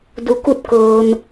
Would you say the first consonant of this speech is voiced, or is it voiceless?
voiced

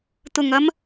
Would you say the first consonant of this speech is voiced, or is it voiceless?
voiceless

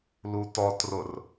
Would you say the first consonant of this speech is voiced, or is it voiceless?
voiced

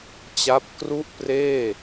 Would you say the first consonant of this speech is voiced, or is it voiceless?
voiceless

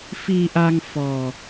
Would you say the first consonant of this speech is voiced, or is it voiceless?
voiceless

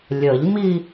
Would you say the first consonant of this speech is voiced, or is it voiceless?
voiced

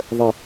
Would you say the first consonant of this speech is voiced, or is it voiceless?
voiced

